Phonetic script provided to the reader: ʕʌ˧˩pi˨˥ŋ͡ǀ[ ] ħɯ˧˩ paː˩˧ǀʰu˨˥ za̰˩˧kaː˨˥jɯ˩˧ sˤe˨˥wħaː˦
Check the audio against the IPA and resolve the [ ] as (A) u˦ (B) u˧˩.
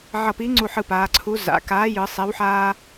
B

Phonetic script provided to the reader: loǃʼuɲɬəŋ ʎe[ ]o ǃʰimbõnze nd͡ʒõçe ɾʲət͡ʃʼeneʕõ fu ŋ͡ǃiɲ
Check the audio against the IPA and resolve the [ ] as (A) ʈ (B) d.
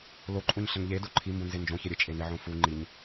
B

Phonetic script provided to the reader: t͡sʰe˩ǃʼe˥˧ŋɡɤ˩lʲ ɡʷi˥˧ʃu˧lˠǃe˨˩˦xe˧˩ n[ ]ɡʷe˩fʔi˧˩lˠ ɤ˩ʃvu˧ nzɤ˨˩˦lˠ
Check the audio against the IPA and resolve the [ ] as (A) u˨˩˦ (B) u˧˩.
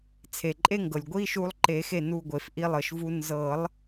B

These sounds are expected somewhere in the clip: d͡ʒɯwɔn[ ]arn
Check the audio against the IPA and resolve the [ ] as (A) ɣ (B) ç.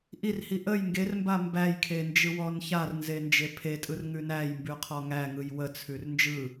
B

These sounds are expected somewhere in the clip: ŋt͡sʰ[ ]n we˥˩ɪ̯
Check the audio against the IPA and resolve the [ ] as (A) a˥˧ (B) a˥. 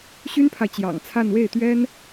A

